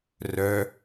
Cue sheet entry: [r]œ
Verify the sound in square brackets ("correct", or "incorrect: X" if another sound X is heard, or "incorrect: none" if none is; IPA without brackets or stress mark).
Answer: correct